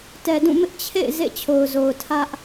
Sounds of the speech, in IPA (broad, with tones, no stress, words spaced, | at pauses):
tɛ˨dũ˦˨mɪ˦ʔ t͡ɕʰḛ˦˨ɪ̯ zḛ˦˨t͡ɕʰo˨ʊ̯zo˨ʊ̯tʰä˦ʔ